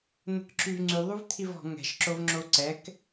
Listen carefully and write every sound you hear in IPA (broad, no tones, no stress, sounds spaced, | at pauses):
n̪ ə̤ k ǁ y v ŋ͡ǀ y ðˤ u v t̪ʰ i v ɔ̤ ŋ ɛ̤ ʃ ǁ o v ŋ͡ǁ o ǀ ɛ k